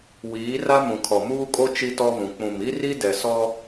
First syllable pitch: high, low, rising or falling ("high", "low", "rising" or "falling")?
rising